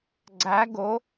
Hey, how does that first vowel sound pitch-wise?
rising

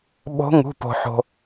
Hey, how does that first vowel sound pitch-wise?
rising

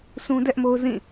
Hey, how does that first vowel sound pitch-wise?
high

